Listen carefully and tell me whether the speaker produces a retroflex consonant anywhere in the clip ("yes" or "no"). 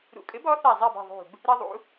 no